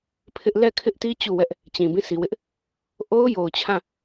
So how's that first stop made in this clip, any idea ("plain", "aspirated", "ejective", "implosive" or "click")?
aspirated